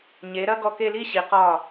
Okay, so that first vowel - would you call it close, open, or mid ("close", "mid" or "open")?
mid